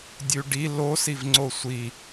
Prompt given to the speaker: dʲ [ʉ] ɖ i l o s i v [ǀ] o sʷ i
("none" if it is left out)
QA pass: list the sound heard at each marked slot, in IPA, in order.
ʉ, ŋ͡ǀ

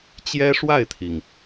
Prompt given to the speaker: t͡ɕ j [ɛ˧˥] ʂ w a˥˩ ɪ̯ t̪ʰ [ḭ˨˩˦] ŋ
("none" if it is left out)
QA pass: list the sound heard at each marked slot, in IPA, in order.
ɛ˥, i˩

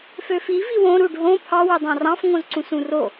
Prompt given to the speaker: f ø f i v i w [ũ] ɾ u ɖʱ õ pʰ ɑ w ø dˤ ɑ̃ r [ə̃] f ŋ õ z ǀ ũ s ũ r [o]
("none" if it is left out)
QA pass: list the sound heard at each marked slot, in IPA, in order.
õ, ɑ̃, o

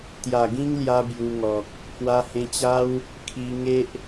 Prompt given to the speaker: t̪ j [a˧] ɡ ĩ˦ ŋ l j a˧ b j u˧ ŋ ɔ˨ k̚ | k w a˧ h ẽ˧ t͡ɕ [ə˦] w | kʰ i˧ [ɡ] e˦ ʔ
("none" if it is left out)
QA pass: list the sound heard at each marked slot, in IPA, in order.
a˨˩, a˦, ŋ

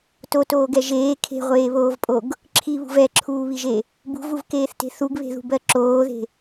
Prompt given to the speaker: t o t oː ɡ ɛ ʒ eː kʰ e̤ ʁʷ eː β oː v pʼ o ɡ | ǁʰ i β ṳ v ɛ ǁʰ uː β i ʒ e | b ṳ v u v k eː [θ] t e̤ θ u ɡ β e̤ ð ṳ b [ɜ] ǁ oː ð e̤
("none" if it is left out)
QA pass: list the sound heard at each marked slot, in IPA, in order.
θ, ɜ

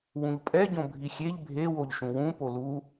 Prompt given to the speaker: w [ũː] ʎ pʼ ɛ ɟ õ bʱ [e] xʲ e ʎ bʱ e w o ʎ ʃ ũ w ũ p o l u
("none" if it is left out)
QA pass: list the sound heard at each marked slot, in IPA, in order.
ũ, i

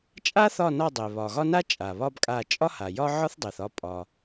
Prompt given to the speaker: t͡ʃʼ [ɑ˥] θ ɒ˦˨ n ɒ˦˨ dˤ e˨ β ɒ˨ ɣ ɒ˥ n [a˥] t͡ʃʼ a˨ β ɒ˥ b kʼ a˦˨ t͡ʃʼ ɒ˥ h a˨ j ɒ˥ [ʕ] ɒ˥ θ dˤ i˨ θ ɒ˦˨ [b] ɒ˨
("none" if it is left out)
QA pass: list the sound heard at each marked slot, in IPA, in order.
a˥, a˥, ʕ, pʼ

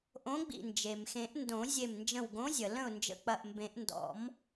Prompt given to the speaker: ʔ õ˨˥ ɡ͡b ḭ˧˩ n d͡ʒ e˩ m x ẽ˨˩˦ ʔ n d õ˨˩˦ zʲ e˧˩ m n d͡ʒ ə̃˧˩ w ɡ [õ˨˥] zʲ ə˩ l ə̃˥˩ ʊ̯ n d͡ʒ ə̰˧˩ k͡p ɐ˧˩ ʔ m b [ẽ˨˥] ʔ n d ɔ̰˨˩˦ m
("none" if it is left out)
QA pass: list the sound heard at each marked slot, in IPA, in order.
õ˨˥, ẽ˨˩˦

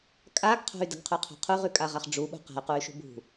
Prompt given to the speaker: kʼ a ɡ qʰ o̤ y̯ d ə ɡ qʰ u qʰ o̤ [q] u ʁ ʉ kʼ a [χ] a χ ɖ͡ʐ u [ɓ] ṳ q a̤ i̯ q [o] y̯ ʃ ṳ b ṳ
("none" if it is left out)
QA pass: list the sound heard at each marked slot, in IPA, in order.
qʰ, ʁ, ɓ, u

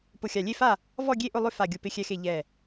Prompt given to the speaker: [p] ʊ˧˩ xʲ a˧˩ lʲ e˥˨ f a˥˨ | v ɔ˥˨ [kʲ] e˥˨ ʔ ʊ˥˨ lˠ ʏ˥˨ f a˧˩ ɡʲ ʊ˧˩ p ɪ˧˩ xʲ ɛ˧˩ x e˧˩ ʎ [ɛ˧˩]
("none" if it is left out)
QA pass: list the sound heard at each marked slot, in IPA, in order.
p, ɡʲ, ɛ˧˩

